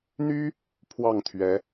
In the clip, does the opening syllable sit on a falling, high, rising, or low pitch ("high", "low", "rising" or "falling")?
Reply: high